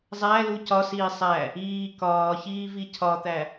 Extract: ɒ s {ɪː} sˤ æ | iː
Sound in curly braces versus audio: incorrect: iː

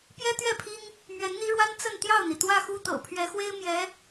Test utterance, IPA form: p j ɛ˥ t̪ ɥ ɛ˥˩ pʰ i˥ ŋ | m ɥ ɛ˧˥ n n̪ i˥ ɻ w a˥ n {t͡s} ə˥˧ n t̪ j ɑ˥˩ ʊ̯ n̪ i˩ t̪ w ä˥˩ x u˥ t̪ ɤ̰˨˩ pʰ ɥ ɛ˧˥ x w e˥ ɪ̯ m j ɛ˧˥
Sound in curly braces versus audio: correct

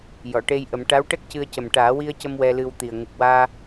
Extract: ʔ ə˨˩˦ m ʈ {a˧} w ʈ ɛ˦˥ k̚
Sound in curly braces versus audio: incorrect: a˧˥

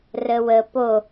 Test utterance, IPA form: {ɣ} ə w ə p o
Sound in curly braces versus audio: incorrect: r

